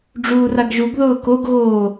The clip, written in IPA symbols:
ɖ͡ʐ uː r a ɡ ʒ u ɡ ð ʊː k o ɡ ɣ oː

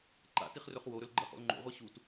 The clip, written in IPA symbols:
ǃ a̰ t i χ r ɵ χ w o ɾ ɵ l ɡ͡ǃ ɐ χ o̰ l ŋ͡ǃ o̰ ʁʷ i ɕ u t

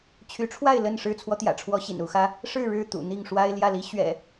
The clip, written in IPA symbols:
t͡ɕʰ y˨˦ ʈ͡ʂʰ w a˥˨ ɪ̯ l ə˥˨ n ʂ ɻ̩˥˨ t͡sʰ w ɔ˦ t̪ j ä̰˨˩ ʈ͡ʂʰ w ɔ˦ ɕ ḭ˨˩ n u˨˦ x ä˦ | ʂ ɻ̩˥˨ ɻ ɻ̩˥˨ t̪ ṵ˨˩ n̪ i˥˨ ŋ ʂ w a˦ ɪ̯ l j ä˥˨ l i˦ ɕ ɥ ɛ̰˨˩

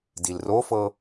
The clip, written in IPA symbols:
d i l r o f ɤ

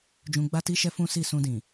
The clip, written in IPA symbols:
d͡ʒ ũ˧ ɡ͡b a˦ t i˦ ʃ ɛ˦ f ũ˦ s i˦˨ s ũ˧ d ĩ˨

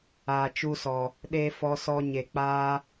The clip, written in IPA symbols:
aː˨ t͡ʃ u˧ s ɔ˨ | ɗ e˧ f ɔ˧ s ɔ˧ ɲ e˨ k͡p aː˧

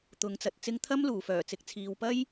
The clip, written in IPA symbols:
t̪ ʊ˨˧ ŋ t͡s ɐ˨ t̚ t͡s ɪ˥ ŋ t̪ʰ ɐ˥ m l uː˨˩ f œː˨˩ t͡s ɪ˨ k̚ t͡sʰ iː˨ w p ɐ˥ j

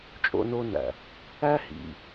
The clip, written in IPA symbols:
t͡ʃʼ o̰˦ n o˦ n æ̰˨ | æ˦ h ḭ˨

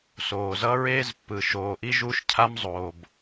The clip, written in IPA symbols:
s oː˨ z ʌ˦ ɹ eː˦ z pː ɯ˨ ʃ oː˨ ʔ i˦ ʒ u˦ ʃ cʰ a˦ m zˤ oː˨ b

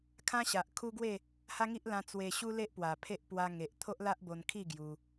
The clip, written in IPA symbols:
kʰ ã˦ ɕ a˨ ʔ kʰ u˦ ɡ w e˥˧ | h a˦ ŋ i˦ ʔ l ã˧ t͡s w e˧ ɕ u˦ l e˦ ʔ p w a˨˩ pʰ e˦ ʔ p w a˧ ŋ e˨ ʔ t̪ʰ o˦ ʔ l a˦ ʔ b o˧ n kʰ i˥˧ ɡ j u˧

